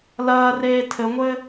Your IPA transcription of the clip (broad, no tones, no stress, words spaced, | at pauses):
lɐː reːtʰɘŋʷɘ